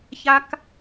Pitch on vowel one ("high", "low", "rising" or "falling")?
high